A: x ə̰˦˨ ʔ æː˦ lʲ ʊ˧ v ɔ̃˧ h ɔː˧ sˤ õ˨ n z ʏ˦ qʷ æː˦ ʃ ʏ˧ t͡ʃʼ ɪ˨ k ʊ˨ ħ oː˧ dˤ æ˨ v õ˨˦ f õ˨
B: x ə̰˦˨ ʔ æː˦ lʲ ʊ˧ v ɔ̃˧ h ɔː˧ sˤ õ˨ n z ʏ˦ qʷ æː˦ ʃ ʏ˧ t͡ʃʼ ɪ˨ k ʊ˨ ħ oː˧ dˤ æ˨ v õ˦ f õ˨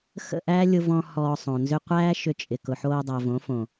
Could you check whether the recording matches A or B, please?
A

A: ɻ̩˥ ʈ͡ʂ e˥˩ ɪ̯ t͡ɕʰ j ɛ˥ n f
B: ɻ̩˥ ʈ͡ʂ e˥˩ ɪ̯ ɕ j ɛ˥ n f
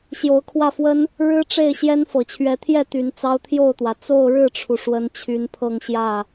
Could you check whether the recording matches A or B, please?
B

